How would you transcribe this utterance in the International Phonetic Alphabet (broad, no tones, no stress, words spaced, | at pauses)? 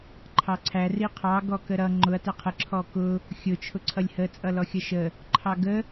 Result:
ǃʰɑǀʰæ riqʰɑ ɡɔkəɾʌ ŋ͡ǃʊɐ̯ tæqʰə ǁʰɔkʊ | xʲʊ t͡ʃʰʊǀʰʌlʲhə t͡sʼʌlɔxʲʌʃə | ǃʰɑɡə